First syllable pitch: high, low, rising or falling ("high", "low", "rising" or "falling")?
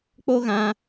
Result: high